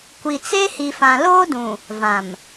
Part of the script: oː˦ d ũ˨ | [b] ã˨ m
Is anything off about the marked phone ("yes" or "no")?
yes